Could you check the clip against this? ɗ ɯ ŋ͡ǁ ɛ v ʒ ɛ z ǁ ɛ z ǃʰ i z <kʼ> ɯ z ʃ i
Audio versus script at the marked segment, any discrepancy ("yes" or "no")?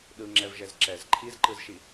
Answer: yes